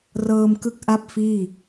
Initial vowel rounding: unrounded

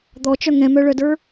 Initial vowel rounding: rounded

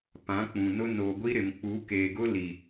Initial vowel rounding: unrounded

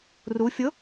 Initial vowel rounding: rounded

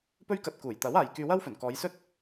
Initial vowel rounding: rounded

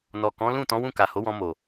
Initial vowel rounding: rounded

